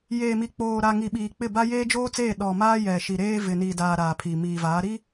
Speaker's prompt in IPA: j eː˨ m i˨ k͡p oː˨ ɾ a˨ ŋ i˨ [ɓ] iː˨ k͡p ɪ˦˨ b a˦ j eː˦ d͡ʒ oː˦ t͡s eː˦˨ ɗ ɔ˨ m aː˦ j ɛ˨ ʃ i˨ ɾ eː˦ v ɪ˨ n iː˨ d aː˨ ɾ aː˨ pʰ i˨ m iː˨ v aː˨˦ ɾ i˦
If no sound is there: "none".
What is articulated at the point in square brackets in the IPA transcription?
ɓ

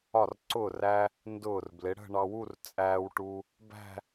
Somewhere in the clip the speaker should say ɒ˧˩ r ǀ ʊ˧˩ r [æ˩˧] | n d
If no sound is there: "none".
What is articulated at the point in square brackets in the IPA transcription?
æ˧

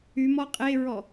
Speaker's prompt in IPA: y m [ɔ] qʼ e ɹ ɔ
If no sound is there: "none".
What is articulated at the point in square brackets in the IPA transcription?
ɔ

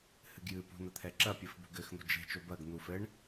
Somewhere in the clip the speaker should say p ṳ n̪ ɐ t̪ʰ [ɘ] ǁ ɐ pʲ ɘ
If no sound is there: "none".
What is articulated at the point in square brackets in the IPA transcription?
ɛ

